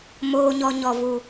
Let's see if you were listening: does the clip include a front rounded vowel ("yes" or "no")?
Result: no